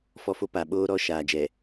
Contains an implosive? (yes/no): yes